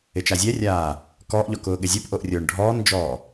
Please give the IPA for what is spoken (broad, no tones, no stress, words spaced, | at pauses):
ɪt͡ʃazʲɛrʲaː | kɔːʔʎɔ kʊːɠɪzʲopʔoʔ rʲʊːɳɖʱɔːnd͡ʒɔː